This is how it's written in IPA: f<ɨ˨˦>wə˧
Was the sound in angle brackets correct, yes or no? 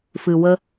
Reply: no